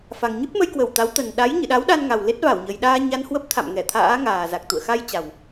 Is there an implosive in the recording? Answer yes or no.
yes